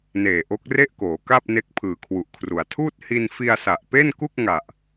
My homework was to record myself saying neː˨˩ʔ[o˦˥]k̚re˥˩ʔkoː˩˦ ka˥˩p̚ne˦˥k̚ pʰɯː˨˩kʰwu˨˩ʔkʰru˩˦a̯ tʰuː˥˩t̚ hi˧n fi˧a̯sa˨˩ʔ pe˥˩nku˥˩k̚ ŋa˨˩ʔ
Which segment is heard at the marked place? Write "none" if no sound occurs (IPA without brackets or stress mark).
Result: o˦˥